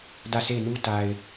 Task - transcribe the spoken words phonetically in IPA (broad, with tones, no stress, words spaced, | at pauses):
dä˦˨se˦˨ɪ̯nu˦ ta˨ɪ̯